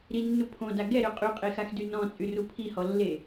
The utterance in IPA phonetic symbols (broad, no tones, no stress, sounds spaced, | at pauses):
ɾ i nː u pʰ õ d a ɡ ɛ ɾ ø qʼ y qʼ e x a x d y n ɔ̃ t͡sʼ y r u pʰ i h ɔ lː e